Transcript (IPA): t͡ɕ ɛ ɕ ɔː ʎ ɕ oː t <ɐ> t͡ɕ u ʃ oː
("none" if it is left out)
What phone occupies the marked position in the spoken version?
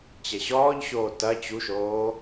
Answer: ɐ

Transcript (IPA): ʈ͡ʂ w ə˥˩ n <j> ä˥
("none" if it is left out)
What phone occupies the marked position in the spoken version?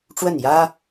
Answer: j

